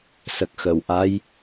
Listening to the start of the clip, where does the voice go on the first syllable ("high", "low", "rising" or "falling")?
low